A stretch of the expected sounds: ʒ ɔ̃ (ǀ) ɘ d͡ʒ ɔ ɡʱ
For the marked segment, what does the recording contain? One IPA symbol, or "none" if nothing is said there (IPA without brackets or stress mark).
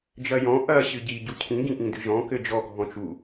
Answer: k